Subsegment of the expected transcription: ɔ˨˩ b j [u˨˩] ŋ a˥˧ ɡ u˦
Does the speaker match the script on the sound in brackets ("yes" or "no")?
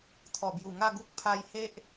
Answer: yes